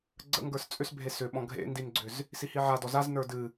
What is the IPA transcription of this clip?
ɡ͡ǀ ə̰ ŋ ɡ ə˞ s t͡sʼ ʏ s bʱ e s ʏ ɓ ɔ̃ ɡʱ ḛ n d i n ɡ͡ǀ ʏ z | s i h i ʕ a d ɔ z a z n ə˞ d ɨ

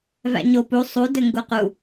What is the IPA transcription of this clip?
v æ̰ ɲ o p u sˤ u d ɘ ŋ ɡ u q u

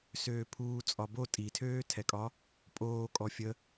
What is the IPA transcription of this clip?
s øː pʰ uː t͡sʼ ɒ b o tʼ i tʰ øː tʰ ɛ kʼ ɒ | pʼ oː kʼ ɔ fʲ ə

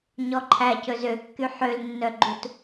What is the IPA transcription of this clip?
ɲ ɔ ǃʰ æ c ɵ z ø kː y ħ ø l nː œ ɡ͡ǃ u t

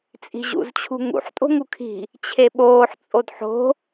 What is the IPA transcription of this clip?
t͡sʼ i̤ ʑ ṵ z t͡ɕʰ ṳ ŋ ṵ ħ tʼ o̤ ŋ u kʰ i̤ | t͡ɕʰ e ɓ oː ħ t͡sʼ o d ħ o̤

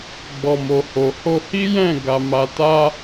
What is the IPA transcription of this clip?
ɡ͡b ɔ˨ m o˨ h o˨ h o˧ h i˦ j ɛ̃˦˨ ɡ a˧ m a˧ t a˦

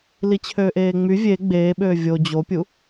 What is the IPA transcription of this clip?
l i t͡ɕʰ øː ʔ eː ŋ͡m y vʲ e ɡ͡b eː ɓ øː vʲ o d͡ʑ o pʲ u

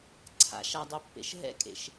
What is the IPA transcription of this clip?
ǀʰ a̰ ʃ a dˤ e pː ḛ ʃ ɦ ɛ̰ kʼ ḛ ʃ

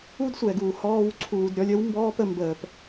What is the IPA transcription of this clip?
u˦ d sʷ ɛ˨ ɡ uː˨ h ɔː˧ w ǀʰ uː˧ d ɾʲ ɔ˦ lʲ ə˦ w m b ɔː˦ p ə˧ m b əː˨ p

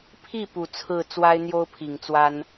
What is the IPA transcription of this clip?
pʰ i˥˩ p u˨˩ t͡sʰ ɹ̩˥˩ t͡s w a˥ ɪ̯ n̪ j o˥ ʊ̯ pʰ i˨˩ ŋ t͡s w a˥ n

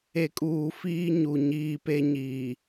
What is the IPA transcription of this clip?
e˨ kʼ uː˨ f iː˦ ɲ u˨ ɲ iː˦ p e˦ ɲ iː˨

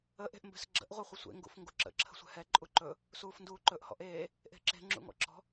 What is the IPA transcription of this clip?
ə ʔ e̤ ʔ m b ɛ̤ s ɡ͡ǁ ə̰ ʔ ʁʷ ɛ χʷ ə sʷ ḛ ŋ ɡ ṵ f ŋ ɡ u ǁ ə̰ ǁʰ ə̤ sʷ ɛ̤ h ɛ ǃʼ u ǃ ɵ | s uː f n d uː ǃ ɵ ʔ h ɔ̰ ʔ eː | ʔ e̤ ǁ e̤ ŋ͡ǁ ṵ ŋ ɔ̰ ǁ ɔ̤

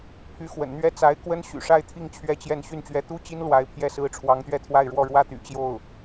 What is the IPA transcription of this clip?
pʰ y˧˥ x w ə̰˨˩ n n̪ ɥ ɛ˥ t͡s a˧˥ ɪ̯ k w ə˥ n ɕ y̰˨˩ ʂ a˥˧ ɪ̯ t̪ʰ i˥˩ ŋ t͡ɕʰ ɥ ɛ˥ t͡ɕ j ɛ˥˧ n ɕ y˥˩ n t͡ɕ ɥ ɛ˧˥ t̪ u˥ t͡ɕ i˥ n l w a˧˥ ɪ̯ pʰ j ɛ˥˩ s ɹ̩˥ ʈ͡ʂʰ w ɑ˧˥ ŋ t̪ ɥ ɛ˥˧ t̪ʰ w a˥˧ ɪ̯ ɻ w ɔ˥˩ ɻ w ä˥ t̪ y̰˨˩ t͡ɕ j o˥˩ ʊ̯

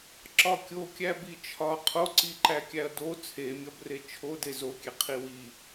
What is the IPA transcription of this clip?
ǁ ɒ kʲ o kʲ æ b i t͡ʃʰ ɒ qʰ o ǀ i ǃ æ kʲ æ ɐ̯ d o t͡sʰ e mʲ ɒ b r e t͡ʃʰ o d e z o kʲ e qʰ i w i

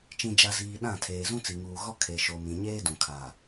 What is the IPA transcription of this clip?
t͡ʃ ĩ˨ d͡ʒ a˨ z iː˨ ɗ ã˦˨ tʰ eː˨ z ũ˦ t͡s i˨ ŋ uː˨ ɣ ɔ˦ kʰ e˨ ʃ o˨ m ĩ˨ ɲ eː˦ d ũ˨ kʰ a˨

